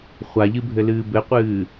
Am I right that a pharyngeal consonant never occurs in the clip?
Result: yes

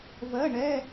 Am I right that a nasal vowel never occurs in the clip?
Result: yes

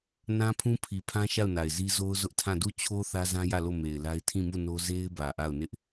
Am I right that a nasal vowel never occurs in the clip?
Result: no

